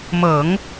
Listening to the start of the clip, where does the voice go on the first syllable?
low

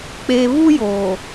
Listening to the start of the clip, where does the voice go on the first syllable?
low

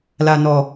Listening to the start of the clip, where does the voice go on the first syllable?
low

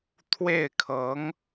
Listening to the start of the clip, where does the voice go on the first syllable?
falling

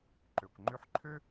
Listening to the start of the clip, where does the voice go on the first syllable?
low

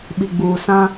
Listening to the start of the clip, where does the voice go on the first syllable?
low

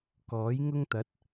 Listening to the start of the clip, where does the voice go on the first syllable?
rising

